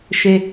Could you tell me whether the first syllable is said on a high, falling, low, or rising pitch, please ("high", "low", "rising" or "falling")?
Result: low